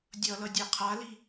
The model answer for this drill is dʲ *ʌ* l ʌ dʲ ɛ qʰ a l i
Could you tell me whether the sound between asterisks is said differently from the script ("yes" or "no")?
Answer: no